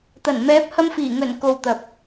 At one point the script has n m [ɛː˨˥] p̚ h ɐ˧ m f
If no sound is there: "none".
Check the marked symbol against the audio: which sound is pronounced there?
ɛː˨˥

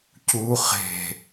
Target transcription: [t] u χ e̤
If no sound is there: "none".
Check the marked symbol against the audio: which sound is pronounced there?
c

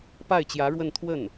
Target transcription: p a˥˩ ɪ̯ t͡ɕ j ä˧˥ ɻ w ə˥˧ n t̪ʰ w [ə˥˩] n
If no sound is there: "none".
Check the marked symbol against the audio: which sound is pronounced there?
ə˥˩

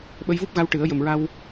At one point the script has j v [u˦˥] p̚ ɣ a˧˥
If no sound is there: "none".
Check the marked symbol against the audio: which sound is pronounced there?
u˦˥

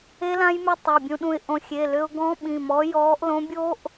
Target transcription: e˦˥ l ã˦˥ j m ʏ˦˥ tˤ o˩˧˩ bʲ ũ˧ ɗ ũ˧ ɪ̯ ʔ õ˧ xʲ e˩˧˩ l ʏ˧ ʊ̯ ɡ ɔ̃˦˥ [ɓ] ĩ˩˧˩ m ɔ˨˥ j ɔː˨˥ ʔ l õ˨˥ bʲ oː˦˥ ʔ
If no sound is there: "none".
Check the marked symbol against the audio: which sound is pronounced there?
ɓ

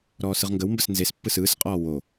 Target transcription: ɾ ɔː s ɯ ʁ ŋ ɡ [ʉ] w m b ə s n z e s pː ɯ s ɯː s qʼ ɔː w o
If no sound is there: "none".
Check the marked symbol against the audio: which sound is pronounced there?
ə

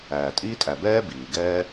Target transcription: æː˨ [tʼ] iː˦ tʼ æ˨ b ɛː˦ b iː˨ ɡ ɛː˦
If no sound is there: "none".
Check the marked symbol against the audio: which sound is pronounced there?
tʼ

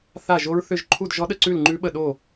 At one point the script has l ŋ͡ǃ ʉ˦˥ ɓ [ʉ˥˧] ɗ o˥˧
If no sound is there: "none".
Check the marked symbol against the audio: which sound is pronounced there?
ə˥˧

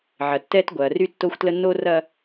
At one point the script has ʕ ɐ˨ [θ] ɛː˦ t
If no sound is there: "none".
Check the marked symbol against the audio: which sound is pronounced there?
tː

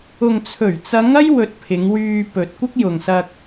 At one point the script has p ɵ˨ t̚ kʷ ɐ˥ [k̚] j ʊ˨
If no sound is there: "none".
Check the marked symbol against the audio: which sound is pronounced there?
k̚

